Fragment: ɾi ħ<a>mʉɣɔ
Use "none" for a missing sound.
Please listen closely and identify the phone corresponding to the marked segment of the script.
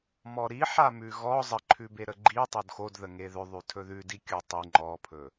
a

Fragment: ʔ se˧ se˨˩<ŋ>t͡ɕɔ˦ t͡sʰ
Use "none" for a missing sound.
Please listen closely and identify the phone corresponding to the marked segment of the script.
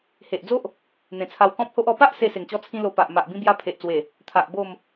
ŋ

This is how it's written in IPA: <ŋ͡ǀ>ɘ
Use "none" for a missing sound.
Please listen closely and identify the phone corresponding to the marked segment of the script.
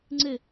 ŋ͡ǀ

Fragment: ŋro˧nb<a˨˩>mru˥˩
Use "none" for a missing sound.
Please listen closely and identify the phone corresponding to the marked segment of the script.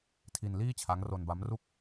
a˦˥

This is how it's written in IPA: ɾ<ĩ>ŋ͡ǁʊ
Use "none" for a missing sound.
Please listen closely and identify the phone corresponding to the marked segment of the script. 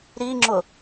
i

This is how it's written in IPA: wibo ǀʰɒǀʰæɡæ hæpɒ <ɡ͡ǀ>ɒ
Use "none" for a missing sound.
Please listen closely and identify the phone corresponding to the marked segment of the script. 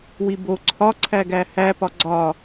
ɡ͡ǀ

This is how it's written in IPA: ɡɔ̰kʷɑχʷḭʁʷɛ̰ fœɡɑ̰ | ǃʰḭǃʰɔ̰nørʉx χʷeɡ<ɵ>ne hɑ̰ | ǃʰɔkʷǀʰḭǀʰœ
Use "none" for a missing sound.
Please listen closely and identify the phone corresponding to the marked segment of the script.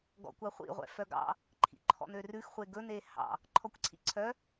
ɵ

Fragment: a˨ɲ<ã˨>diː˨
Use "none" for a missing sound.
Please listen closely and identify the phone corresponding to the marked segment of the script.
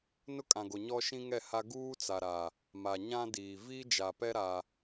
ã˦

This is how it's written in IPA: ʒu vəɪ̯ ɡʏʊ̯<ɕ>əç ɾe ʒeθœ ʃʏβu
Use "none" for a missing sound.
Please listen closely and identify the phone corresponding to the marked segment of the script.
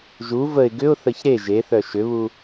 θ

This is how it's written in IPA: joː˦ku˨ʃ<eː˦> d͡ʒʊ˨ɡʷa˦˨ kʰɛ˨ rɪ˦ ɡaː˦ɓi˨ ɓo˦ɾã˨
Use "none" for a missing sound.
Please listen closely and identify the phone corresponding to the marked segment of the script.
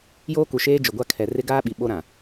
eː˦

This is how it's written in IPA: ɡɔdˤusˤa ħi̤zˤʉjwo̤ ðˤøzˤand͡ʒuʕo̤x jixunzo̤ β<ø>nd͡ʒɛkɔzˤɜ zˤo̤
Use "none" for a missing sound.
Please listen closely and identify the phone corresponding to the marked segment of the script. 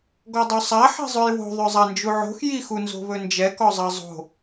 ɵ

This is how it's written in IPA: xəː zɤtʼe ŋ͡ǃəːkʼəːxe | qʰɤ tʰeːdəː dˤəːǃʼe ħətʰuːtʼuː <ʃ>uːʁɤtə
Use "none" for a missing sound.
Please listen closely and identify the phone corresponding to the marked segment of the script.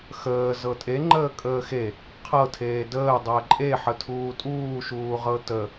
ʃ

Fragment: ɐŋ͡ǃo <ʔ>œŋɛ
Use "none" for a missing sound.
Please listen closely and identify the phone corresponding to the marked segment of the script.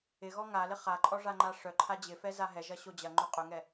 qʼ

